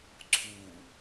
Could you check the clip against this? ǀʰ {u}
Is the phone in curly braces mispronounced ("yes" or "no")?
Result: no